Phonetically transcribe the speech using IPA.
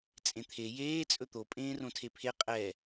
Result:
t͡sʼẽt̪ʰe jeː t͡sʼɵt̪o pʼẽːrõtʰepʰe qʼɛ

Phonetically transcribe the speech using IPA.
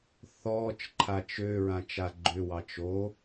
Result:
θɔːt͡ʃǃʰa t͡ʃø ɹãt͡ʃaɡ͡ǃʏwɑ t͡ʃo

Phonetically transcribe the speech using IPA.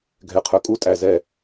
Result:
ɡʱɛ˨qʰœ˨kʼu˦˨ tʼæ˨zɛ˦˨

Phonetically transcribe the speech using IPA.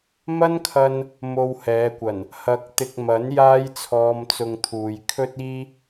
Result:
mɐ˥nkʰɐ˧n | mo˧whɛː˨˧kʷɐ˨˩n | hɐ˨˥k̚t̪ɪ˨k̚ mɐ˨˥n jaː˥jt͡sʰɔː˧mt͡sʊ˧ŋt̪ʰuː˨j kʰɵ˥t̚iː˥

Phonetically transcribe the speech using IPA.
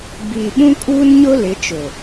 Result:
biː˨ɓũ˦ kʼuː˦nɲʊ˦ lɪ˨˦t͡ʃʊ˨

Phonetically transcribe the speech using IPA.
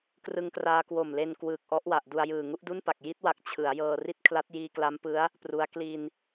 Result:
krɯ˧ŋkraː˧kwo˨˩mle˧n kwɯː˨˩k̚ʔɔ˦˥ʔwa˨˩ʔ du˧a̯jɯː˨˩ ŋu˦˥ʔdu˥˩npa˨˩k̚ ji˦˥t̚wa˨˩k̚ t͡ɕʰɯ˩˦a̯jɤː˧ri˥˩t̚ kʰla˦˥t̚jiː˧kla˦˥mpɯ˦˥a̯ | pru˦˥a̯ kli˧n

